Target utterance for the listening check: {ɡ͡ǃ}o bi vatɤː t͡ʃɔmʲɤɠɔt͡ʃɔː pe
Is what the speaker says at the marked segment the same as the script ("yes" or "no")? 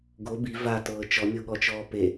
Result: no